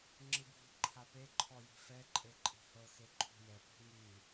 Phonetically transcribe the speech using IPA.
ŋ͡ǁ ɯ bʱ i̤ ǃʰ a p e ǃʰ ɔ j i̤ f ɛ ǃʼ e ǃʼ i̤ h ɤ x e ǃʰ ṳ j ɛ p i̤ ŋ i

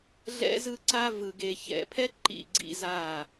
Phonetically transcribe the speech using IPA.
ɮ ɛ̰˦ z ɯ˦ ǀ a˦ v ɯ˨ ɡ e˨ ç ɛ̰˨ pʰ ɛ˦ ǃ ḭ˦˨ ɡ͡ǀ ḭ˦ z a˦˨

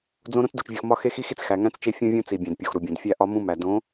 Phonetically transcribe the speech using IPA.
d͡z õ˦ ɾ õ˦ t͡s d u˨ t͡ʃ vʲ u˨ x m ɒ˦ x e˦ x i˦ x i˦ t͡s x æ˨ ŋ æ̃˦ t͡s t͡ʃ e˦ fʲ ũ˦ vʲ ũ˦ t͡s i˨ bʲ æ̃˨ d pʲ o˨ x ɾ u˨ bʲ õ˨ d fʲ æ˦ ʔ ɒ˦ m ũ˦ m æ˨ d õ˨˦

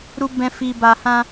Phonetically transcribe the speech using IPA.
ɾ u˧ b ɛ̃˧ f i˧ b a˧ h ã˧

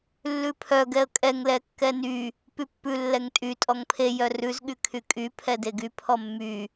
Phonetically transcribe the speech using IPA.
lː ʉ pʰ œ ɡ ɛ ə̯ kʼ ɛ ŋ l ɛ kː ɛ n y | p y pː ʉ lː ɛ ŋ tʼ y tʼ ɔ ŋ pʰ e j œ r ʉ z ɠ y kʰ y kʼ y pʰ ɛ d e ɡ y pʰ ɔ mː y

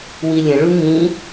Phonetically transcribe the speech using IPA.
w i lʲ ə̃ ɭ u ŋ ĩ

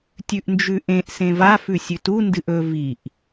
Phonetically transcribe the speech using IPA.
tʲ ʉ ʔ n d͡ʒ ʉ ʔ ẽ ʔ s ẽ v a f ʉ sʲ ʉ t u n d ɨ ʔ ɵ v i ʔ

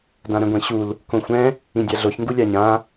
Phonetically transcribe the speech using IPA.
d ã ɾ ɛ̃ ɡʷ ɛ̃ ɕ u l | k õ xʷ ɛ̃ | ĩ dʲ a ɮ o ç ŋ ɡ u lʲ a ɲ ã

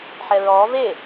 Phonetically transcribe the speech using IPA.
ħ ɛ ɹ ɔː v e

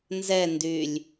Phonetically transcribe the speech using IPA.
n z ɛ n d y lʲ

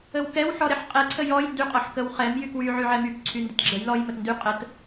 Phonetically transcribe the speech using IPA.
ə w k ɛ w ħ ɔ ɾ ɛ ħ qʼ ɛ ǀʰ ə j ɔ j n d y qʼ ɔ ħ k ə w χ ɛ m j y k w y ʕ y ʕ ɛ m y k ǀʰ y n d ə t ɡ͡ǁ ə j l ɔ j m ə t n d y qʼ ə t

